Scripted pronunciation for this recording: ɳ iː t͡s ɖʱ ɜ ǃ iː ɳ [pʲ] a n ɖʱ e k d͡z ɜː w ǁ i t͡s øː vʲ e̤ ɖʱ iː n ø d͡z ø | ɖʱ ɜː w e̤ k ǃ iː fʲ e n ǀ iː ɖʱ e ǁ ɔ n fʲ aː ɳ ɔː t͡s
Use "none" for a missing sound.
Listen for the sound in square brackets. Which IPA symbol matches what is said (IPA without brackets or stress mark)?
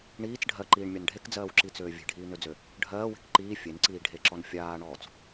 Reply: mʲ